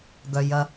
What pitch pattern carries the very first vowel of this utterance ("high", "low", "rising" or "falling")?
low